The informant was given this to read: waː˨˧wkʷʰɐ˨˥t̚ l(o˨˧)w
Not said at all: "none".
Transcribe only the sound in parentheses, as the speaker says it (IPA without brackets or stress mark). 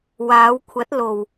o˨˩